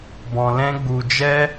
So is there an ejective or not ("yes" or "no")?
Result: no